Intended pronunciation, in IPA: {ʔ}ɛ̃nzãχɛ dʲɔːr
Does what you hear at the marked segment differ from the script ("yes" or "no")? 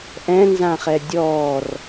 no